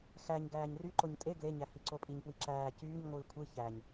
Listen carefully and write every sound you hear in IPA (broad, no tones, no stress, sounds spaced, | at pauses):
x æ ɲ ɡ æː ɲ r y ǃ o ɲ tʼ e ɡ l e ɲ æ h i ǀ o pʼ i ɲ p w i ǁ æː c yː ɲ ŋʷ ɯː kʷʰ ɯ ç æ ɲ